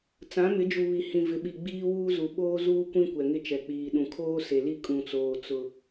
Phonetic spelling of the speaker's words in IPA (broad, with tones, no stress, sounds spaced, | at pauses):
t͡s ã˨˦ m ɪ˨˦ d͡ʒ u˨ β i˨ h ĩ˨ v ɪ˨ ɓ i˨ ɡ͡b iː˦ w uː˦ z u˨ ɓ oː˦ z uː˦ kʷ ĩ˦ kʷ ɛ˨ ŋ ɪ˦ t͡ʃ ɛ˨ k͡p iː˨ ɗ ũ˨ kʰ oː˦ s e˨ l i˦ kʼ ũ˨ t͡s oː˨ t͡s ʊ˦